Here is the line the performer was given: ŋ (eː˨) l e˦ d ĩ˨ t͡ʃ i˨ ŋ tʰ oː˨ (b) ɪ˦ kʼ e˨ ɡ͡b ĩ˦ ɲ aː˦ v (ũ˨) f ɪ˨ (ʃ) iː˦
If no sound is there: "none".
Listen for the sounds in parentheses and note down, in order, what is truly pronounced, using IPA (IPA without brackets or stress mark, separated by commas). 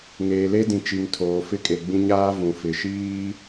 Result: eː˨, f, ũ˨, ʃ